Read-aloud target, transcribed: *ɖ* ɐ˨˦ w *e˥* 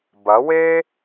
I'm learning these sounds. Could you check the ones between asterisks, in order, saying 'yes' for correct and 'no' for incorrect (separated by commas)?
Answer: no, yes